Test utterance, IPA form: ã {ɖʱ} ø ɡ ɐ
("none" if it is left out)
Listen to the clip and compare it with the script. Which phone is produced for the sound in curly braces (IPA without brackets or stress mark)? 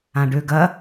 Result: ɖ